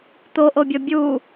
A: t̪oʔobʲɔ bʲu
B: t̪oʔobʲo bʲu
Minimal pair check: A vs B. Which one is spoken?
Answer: A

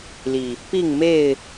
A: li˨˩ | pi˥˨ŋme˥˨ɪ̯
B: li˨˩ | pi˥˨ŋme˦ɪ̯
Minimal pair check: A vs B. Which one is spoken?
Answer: A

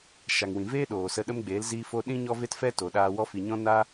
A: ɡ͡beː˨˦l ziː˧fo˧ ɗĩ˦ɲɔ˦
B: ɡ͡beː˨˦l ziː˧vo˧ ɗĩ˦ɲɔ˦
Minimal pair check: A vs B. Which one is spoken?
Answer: A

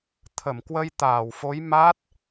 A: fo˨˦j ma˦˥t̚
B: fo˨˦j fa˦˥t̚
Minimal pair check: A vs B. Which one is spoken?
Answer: A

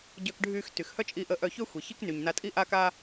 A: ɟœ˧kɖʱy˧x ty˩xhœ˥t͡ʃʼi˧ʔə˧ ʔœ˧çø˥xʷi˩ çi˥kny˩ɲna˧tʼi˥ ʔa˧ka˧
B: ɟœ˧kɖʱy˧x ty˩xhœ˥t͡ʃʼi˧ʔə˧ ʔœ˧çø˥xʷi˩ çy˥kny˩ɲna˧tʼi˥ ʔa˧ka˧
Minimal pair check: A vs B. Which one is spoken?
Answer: A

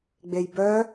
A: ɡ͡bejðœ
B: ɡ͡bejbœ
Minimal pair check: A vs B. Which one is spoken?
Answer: B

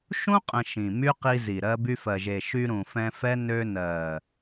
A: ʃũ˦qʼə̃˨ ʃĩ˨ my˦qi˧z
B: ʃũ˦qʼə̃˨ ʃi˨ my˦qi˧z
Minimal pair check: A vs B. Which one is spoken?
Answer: A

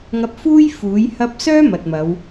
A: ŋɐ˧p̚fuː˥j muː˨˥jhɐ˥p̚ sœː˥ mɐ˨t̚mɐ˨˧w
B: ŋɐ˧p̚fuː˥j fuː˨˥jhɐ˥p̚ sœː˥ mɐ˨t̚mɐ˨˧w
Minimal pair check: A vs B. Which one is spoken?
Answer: B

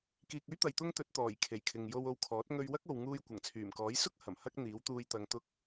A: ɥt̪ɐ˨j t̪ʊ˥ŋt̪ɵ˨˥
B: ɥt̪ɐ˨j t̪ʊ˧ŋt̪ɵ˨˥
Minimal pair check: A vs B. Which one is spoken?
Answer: A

